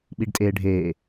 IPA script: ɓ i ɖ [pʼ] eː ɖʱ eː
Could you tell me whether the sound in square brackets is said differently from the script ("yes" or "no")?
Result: yes